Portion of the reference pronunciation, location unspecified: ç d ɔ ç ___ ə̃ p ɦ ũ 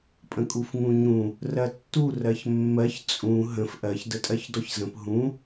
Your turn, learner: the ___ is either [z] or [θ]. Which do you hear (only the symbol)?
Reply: z